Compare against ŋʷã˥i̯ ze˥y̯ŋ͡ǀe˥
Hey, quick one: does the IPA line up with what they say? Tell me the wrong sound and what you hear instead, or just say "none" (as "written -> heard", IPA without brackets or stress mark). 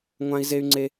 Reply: none